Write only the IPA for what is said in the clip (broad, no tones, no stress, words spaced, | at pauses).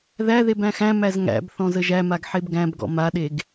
ðæðeb æ̃xæ̃mæz ŋæ̰b θɔ̃zəʒæmaɡ ħebɡæ̃bɡɔ̰ maɗeɡ